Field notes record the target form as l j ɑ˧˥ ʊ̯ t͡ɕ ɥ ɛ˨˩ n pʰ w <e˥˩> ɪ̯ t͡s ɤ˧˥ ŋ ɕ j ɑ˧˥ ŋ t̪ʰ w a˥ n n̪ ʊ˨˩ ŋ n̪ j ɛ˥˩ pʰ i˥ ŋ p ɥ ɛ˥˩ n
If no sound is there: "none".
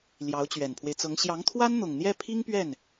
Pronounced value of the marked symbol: e˦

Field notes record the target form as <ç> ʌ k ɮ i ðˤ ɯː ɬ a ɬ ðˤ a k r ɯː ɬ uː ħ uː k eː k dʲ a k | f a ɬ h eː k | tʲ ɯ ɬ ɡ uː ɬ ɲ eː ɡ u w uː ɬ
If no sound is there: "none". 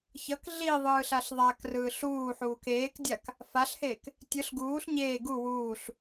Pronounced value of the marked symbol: ç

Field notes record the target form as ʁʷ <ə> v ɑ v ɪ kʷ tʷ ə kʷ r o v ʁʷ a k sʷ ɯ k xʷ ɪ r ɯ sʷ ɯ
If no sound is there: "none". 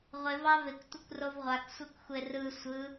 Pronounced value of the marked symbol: ɪ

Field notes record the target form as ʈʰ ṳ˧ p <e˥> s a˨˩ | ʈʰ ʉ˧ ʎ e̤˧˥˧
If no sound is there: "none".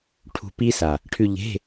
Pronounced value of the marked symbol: i˥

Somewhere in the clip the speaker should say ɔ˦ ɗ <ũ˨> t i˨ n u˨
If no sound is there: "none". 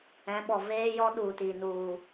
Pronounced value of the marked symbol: u˨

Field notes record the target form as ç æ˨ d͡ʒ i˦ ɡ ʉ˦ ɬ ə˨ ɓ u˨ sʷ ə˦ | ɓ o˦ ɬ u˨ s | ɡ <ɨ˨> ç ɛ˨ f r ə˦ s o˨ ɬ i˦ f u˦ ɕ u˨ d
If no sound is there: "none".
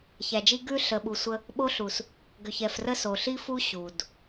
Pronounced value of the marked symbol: ʏ˨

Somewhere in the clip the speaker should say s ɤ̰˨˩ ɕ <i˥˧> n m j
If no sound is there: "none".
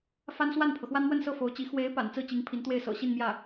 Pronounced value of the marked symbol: i˥˧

